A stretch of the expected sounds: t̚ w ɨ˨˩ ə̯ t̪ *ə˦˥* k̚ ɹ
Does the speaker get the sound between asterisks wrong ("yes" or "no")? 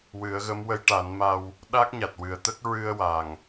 no